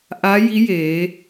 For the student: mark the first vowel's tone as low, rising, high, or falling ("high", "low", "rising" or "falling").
rising